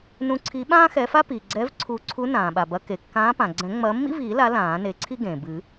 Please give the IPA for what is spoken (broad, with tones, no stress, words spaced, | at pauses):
nũ˨˦ǀʰi˨˦ ɓãː˥xɛ˨˦fa˥piː˩ ɡ͡ǀɛ˨˦vǀʰu˨˩˦ǀʰu˨˦ nãː˩ɓa˩bɐ˨˦ ke˩kːãː˨˦pã˩ ɡ͡ǀɛ̃˨˩˦ŋ͡mɐː˨˦mːḭ˥viː˨˩˦ la˨˦ lãː˨˩˦ne˨˦ǀʰi˥ ɡẽː˩ bɨ˨˩˦